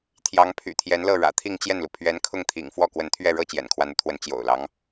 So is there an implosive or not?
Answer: no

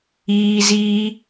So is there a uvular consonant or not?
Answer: no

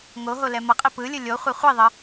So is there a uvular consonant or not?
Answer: yes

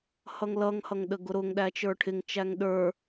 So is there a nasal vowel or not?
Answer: no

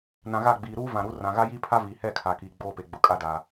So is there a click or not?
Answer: no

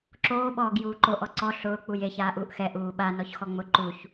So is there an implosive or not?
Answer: yes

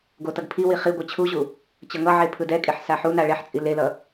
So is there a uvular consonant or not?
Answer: yes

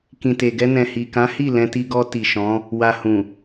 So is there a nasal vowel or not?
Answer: yes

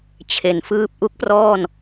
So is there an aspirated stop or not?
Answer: yes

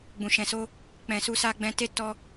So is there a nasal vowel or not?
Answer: yes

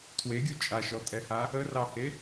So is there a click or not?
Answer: no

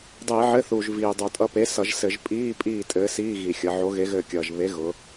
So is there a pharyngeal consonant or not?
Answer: yes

